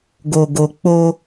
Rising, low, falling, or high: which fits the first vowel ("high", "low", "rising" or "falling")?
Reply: low